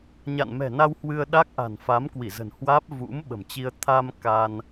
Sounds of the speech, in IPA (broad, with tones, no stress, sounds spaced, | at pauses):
ɲ a̰˧˨ n m ɛ̤˨˩ n a˧ w h w ɨ˧ ə̯ ɗ a˦˥ k̚ ʔ a̤˨˩ n f a˨˦ m k w i˧˩ z ə̤˨˩ n h w aː˦˥ p̚ v ṵ˧˥ m ɓ ə̤˨˩ m t͡ɕ i˧ ə̯ t̪ʰ a˧ m k a˧ n